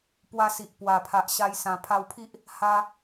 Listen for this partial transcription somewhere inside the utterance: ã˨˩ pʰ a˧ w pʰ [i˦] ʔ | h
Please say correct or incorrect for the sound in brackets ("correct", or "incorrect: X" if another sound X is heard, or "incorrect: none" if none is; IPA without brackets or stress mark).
correct